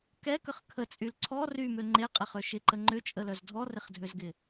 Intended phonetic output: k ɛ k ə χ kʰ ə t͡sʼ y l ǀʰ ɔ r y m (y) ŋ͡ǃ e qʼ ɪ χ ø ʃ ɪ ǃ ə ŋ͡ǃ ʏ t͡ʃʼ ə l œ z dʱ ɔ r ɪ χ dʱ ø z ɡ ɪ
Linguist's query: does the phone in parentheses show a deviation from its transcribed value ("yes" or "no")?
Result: yes